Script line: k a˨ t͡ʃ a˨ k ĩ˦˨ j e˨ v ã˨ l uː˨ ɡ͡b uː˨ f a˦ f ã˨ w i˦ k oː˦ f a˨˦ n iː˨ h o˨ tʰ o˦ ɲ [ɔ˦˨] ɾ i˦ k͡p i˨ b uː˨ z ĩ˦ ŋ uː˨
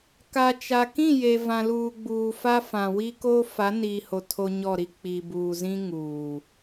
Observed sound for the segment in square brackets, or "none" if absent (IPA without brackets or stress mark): ɔ˦˨